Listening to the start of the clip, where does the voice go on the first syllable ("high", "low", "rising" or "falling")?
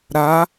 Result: rising